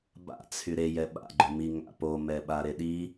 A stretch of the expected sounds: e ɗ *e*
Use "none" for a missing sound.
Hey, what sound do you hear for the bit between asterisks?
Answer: i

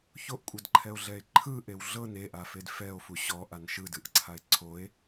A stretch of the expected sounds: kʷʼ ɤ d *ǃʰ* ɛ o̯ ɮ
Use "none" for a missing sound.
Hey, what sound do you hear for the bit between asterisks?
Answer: ǃʰ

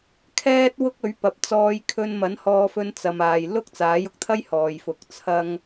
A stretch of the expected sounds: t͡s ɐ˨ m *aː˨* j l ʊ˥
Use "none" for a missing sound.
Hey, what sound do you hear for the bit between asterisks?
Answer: aː˨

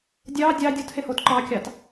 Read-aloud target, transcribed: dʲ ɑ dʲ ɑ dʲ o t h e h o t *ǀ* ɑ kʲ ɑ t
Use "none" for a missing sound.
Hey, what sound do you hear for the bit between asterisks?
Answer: ǃ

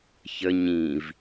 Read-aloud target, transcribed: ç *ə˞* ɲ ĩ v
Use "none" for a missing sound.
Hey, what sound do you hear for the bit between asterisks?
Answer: ə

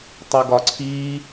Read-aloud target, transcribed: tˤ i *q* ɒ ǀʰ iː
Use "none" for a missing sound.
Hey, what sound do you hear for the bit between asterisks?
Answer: ɡ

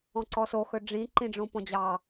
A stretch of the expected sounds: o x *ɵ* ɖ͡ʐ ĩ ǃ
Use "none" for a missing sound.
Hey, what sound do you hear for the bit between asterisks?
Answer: ɵ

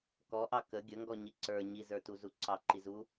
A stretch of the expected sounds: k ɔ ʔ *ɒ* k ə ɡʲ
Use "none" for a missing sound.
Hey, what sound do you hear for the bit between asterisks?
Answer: ɑ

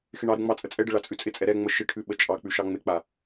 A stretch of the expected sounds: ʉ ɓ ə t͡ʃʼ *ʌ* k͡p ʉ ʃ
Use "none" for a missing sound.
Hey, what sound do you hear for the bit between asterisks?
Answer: ɑ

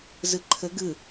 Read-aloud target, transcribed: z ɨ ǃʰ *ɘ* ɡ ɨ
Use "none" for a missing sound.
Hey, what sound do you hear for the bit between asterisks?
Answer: ɘ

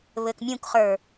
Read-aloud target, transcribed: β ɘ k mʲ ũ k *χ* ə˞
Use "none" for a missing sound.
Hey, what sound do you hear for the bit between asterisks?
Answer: χ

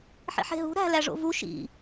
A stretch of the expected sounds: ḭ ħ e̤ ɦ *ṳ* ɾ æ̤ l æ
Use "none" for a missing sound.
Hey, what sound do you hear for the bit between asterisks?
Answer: ṳ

